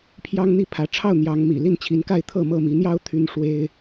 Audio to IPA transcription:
pʰ j ɑ˦ ŋ n̪ i˥˨ pʰ ä˨˦ ʈ͡ʂʰ ɑ˥˨ ʊ̯ n̪ j ɑ˨˦ ŋ m ḭ˨˩ l i˥˨ n t͡ɕʰ i˨˦ n k a˥˨ ɪ̯ t̪ʰ ɤ˥˨ m ɤ˥˨ m i˨˦ n̪ j ɑ˦ ʊ̯ t̪ʰ y˦ n ʂ w e˦ ɪ̯

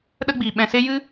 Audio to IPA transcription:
ɗ ə˦ ɡ͡b iː˨ ɓ ɛ̃˨ s e˦ j ɨ˦

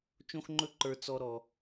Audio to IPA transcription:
t͡ʃ õ˥ x ŋ͡ǃ ɵ˥ ǃ ə˞˧ t͡s ɔ˧ ɾ ɔ˧

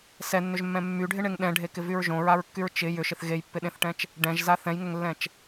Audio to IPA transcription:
s ɛ nː ʏ ʒ mː ɛ̃ mː y ɖʱ ɪ ɳ e ŋ ɗ ɛ̃ ɖʱ e k ɪ v y ɹ ʒ õ ɹ a ɹ kː y ɹ t͡ʃ ɪ j ʏ ʃ ɪ θ ɣ e j pː ɪ ɗ ẽ θ ʈ ɛ̃ t͡ʃ | ɖ ɛ̃ ʒ z a θ ɛ̃ j ŋ ʏ ŋ lː ɛ̃ t͡ʃ

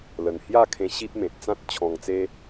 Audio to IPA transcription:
l ə˨˩ n h j a˥˧ kʰ ẽ˧ ɕ i˦ p̚ m ẽ˨ t̚ t͡s ã˦ t̚ t͡ɕʰ ɔ̃˨˩ ŋ t͡s e˧

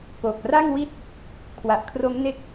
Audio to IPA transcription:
k oː˨˩ k̚ r a˥˩ ŋ w i˥˩ t̚ | kʰ w a˨˩ ʔ kʰ r o˦˥ m n e˦˥ k̚

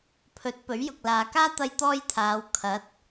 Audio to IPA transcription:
pʰ ɵ˨˥ t̚ p ɵ˨˥ ɥ j ʊ˨ k̚ l aː˨ k aː˥ t̪ ɐ˥ j t̪ ɔː˥ j t̪ʰ aː˨˧ w kʰ ɐ˨˥ t̚

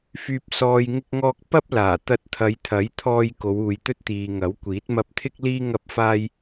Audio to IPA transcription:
f yː˨ p̚ s ɔː˨ j ŋ ɪ˧ k̚ ŋ ɔː˧ k̚ p ɐ˥ p̚ l aː˨˩ t̪ ɐ˧ t̚ t̪ʰ ɐ˨˧ j t̪ʰ ɐ˨˥ j t̪ʰ ɔː˧ j k o˨˧ w uː˨ j t̪ ɵ˥ t̚ t̪ iː˨ ŋ ɐ˨˥ w kʷ iː˨˥ t̚ m ɐ˧ p̚ t̪ʰ ɪ˥ k̚ l iː˥ ŋ ɐ˥ p̚ f aː˥ j

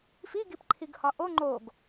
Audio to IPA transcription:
f i ɡ i p ǃʰ i ɡ h ɒ ʔ o ŋ͡ǃ o ɡ

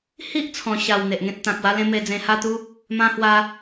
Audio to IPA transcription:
h i˦ ʔ t͡sʰ ɔ̃˨˩ ɕ a˨˩ w n̪ e˨ ʔ ŋ ẽ˦ t̚ t̪ ã˨ k̚ w a˦ l ẽ˦ m e˧ d͡z ẽ˧ h a˥˧ t̪ u˦ | m ã˦ h w a˦

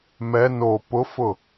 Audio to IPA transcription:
m ɛ n o p ʊ f ʊ

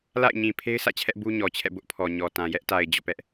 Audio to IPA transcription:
l a̰˦˨ ɪ̯ ɲ ĩ˨ pʰ e˦ ɪ̯ s ä̰˦˨ t͡ɕʰ ɛ˦ ʔ b u˦ ɲ ɔ˨ t͡ɕʰ ɛ̰˦˨ b ʊ˦ ʔ pʰ ɔ˨ ɲ ɔ˨ t ã˨ j ɛ˦ ʔ t a˨ ɪ̯ d͡ʑ ɔ̰˦˨ p ɛ˦ ʔ

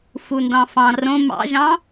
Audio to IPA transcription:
f u n d ɑ̃ f ɑ̃ r õ m ɑ̰ ʒ ɑ̃

